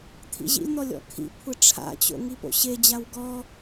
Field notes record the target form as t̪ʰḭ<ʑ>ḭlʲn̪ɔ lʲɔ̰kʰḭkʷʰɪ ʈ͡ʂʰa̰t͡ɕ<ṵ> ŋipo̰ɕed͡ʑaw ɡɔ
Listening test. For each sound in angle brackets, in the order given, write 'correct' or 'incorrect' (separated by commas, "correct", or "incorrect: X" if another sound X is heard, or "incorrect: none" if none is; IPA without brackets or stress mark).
correct, incorrect: o̰